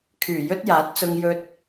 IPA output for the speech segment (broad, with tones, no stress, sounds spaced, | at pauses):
kʰ yː˨˩ j ɵ˥ t̚ j aː˨˥ t̚ t͡s ʊ˧ ŋ j ɵ˧ t̚